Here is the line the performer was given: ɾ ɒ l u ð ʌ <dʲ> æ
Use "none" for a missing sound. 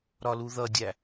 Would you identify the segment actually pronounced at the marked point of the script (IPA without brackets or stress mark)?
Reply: dʲ